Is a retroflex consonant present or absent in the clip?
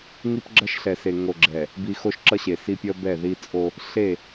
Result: absent